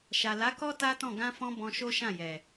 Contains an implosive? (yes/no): no